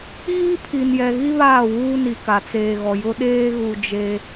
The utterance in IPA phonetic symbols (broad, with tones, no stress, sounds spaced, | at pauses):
ɣ iː˦ pʰ i˨ n j ɛ˨ ɣ i˦ β aː˦˨ w uː˦ n i˨ k a˨ t͡s eː˨ ɣ ɔ˨ j ʊ˦ ɗ eː˦ ɣ u˨ d͡ʒ e˦